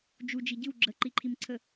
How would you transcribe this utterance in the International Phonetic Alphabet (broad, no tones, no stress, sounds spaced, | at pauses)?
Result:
d͡ʒ u d͡ʒ i ɟ ɨ w ɡ͡ǁ ə ǃ i ǃʰ i m ǀʰ ə